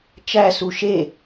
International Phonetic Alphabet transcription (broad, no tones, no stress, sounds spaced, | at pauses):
t͡ʃ æ s u ʃ e